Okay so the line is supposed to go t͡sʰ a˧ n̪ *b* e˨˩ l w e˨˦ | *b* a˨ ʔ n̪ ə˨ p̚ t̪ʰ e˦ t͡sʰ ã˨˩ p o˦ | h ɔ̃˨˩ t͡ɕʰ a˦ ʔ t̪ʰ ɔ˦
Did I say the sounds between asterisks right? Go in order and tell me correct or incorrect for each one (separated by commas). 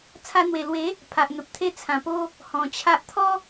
incorrect, incorrect